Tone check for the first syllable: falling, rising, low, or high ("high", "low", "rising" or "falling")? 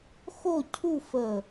falling